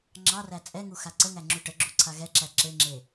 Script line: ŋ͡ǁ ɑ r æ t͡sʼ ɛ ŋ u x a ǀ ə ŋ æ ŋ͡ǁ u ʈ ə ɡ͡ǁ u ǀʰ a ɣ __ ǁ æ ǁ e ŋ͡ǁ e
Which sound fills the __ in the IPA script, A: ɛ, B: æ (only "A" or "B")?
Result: A